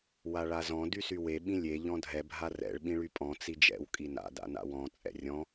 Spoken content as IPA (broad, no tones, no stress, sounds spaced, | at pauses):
w a ɭ a z ɔ̃ d y s y w e ɓ ĩ lʲ e ʎ ɔ̃ dʱ ɛ bʱ a r ɛ̰ ɭ ɓ ĩ ɭ y pʼ ɔ̃ t͡s i d͡ʒ ɛ̰ w kʼ i n a̰ d a̰ n a̰ w ɔ̃ t͡sʼ ɛ̰ rʲ ɔ̃